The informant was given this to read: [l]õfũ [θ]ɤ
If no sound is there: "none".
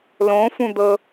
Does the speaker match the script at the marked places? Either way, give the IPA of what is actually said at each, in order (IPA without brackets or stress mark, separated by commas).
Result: l, d̪